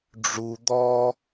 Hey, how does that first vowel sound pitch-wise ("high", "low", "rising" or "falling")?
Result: low